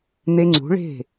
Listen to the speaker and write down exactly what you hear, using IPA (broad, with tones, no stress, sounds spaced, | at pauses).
n̪ e˧ ŋ͡ǀ ṳ˨˦ ɭ e̤˦˨